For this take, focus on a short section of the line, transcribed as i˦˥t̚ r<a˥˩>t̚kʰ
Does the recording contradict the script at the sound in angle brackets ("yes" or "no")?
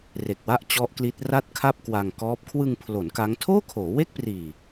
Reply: no